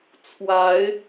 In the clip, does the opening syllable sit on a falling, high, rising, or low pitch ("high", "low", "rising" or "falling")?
rising